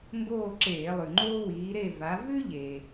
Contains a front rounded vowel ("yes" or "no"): no